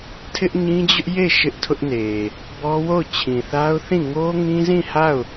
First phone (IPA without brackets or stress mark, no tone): tʰ